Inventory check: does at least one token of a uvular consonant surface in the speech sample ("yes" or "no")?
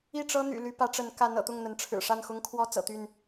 no